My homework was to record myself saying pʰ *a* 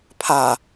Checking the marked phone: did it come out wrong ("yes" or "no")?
no